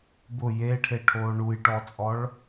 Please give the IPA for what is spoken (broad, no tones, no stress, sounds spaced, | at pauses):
b ʊ j e ʈʰ e ʈʰ oː ɳ u j ʈ ɔ t͡sʼ ɔ ɭ